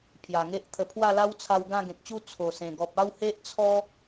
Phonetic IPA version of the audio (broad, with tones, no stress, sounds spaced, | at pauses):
pʰ j a˨˩ ŋ e˦ ʔ t̪ʰ ə˧ pʰ w a˥˧ l a˦ w t͡sʰ a˧ w ɡ ã˥˧ ɡ ẽ˨ k̚ t͡ɕ u˥˧ t͡sʰ o˨˩ s ẽ˨˩ ɡ ɔ˨ p̚ a˥˧ w h e˦ ʔ t͡sʰ ɔ˦